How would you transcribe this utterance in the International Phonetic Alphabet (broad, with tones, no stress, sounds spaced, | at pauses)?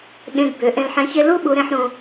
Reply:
ɠ ẽ˧ ɡ b ø˩˧ ʔ ẽ˧ l ħ ɛ̃˧˥ ç e˥ l u˥ ɓ u˧˥ ɾ ẽ˥ ħ ɾ ũ˧